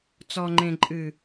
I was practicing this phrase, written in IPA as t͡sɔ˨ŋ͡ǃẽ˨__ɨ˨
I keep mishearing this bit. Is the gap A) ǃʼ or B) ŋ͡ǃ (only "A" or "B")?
A